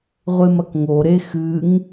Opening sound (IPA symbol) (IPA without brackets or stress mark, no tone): ʁʷ